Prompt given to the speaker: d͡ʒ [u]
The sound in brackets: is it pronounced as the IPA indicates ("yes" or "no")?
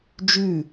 no